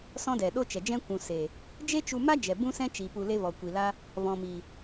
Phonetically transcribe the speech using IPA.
s ɔ̃˦ d ɛ˨ ɗ o˦ t͡ʃ ɛ˨ d͡ʒ ɛ̃˦ kʷ ũ˨ s e˨ | d͡ʒ e˦ t͡ʃ u˧ m a˦ d͡ʒ ɛ˨ b ũ˦ s ɛ̃˦ t͡ʃ i˨ p u˧ l e˦ v ɔ˨ kʷ i˨ l a˦ | v ɔ̃˨ m i˨

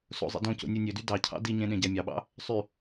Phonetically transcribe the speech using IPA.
s o̰ zˤ ḭ d õ c o̰ nʲ u nʲ ø d y d ɑ cʰ ɑ̰ d i ɲ ẽ ɗ ẽ ɟ æ mʲ ɑ ɓ ɑ̰ | sˤ y

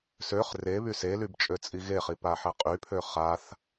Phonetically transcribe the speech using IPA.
s ø χ r e β y s e l y b t͡ʃʼ ø t͡sʼ i ɣ e χ i p a ħ ɛ qʼ y pʰ ø χ a θ

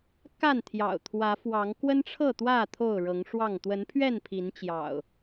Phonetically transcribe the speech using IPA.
k a˥˨ n t̪ʰ j ɑ̰˨˩ ʊ̯ t̪ʰ w ä˨˦ f w ɑ˨˦ ŋ k w ə˦ n ʈ͡ʂʰ ɤ˥˨ t̪ w ä˥˨ t̪ʰ o˥˨ ʊ̯ ɻ ɤ˨˦ ŋ ʂ w ɑ˥˨ ŋ t̪ w ə˨˦ n pʰ ɥ ɛ˥˨ n pʰ i˨˦ n t͡ɕ j ɑ̰˨˩ ʊ̯

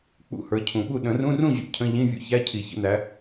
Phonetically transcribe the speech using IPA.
k͡p ṵ˧˥˧ h ə˞˨˦ cʰ ũ˨˩˦ ɓ u˥˨ ɗ ə̃˨˩˦ r ũ˧˥˧ r ũ˥˨ ʑ ṵ˨ cʰ ə̃˧˥˧ ʎ ĩ˧˥˧ vʲ ṵ˥ ç æ˧˥˧ cʰ i˨˩˦ ç ə̰˥˨ n æ˨˦

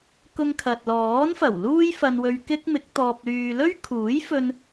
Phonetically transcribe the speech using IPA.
k ʊ˧ ŋ kʰ ɐ˨ t̚ l ɔː˨˥ n f ɐ˨˩ w l uː˥ j f ɐ˧ n w ɵ˧ ɥ k ɪ˥ k̚ m ɪ˨˥ k̚ t̪ ɔː˧ p̚ l yː˧ l ɵ˥ ɥ kʰ uː˨˥ j f ɵ˧ n

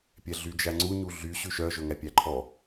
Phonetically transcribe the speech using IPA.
pʲ ɛ ɮ y d͡ʒ æ ŋ͡ǀ u ɲ u ɮ y ɕ ʉ ʃ œ ʒ ɵ ŋ æ pʲ æ ǃʰ ɔ

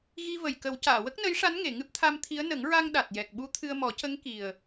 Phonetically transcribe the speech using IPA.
ɣ i˧ v ə˨˩ j k ə˨˩˦ w c aː˨˩˨ w ə˦˥ k̚ n ə˧˥ j ʂ a˧˥ n ŋ e˨˩˨ ŋ ɨ˦˥ p̚ t̪ʰ a˧ m t̪ʰ i˧˥ ə̯ n ə˨˩˦ ŋ ɹ a˧ ŋ ɗ a˨˩ t̚ j ɛ˨˩ k̚ ɓ u˧˥ t̪ʰ ɨ˧ ə̯ m ɔ˨˩˦ c ə˧˥ ŋ k i˨˩ ə̯

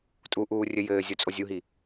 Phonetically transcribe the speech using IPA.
tʼ u ʔ uː rʲ ɘ j ɘː zʲ o t͡sʼ o zʲ u ɦ i

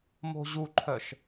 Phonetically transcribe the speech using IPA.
m o̤ ʑ u ǃʰ œ ʃ

